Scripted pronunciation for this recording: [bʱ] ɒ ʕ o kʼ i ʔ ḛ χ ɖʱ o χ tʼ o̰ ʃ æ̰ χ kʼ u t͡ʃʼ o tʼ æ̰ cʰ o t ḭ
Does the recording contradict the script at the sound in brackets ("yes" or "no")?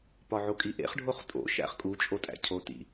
yes